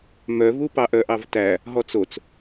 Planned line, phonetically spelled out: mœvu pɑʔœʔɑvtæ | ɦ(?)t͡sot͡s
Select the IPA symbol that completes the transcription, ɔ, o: ɔ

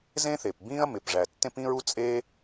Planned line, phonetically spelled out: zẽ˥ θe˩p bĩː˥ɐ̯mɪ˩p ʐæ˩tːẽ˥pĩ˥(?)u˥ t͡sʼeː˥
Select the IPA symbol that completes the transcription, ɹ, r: ɹ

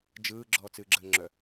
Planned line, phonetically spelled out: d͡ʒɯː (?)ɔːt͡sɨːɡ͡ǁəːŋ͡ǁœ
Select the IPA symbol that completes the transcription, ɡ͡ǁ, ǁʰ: ɡ͡ǁ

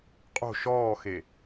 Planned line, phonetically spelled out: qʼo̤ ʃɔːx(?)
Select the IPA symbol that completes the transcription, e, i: e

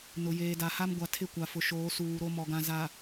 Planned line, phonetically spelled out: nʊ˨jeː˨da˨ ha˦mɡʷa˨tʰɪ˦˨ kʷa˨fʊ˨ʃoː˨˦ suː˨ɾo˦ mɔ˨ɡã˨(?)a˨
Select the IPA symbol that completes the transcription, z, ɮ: z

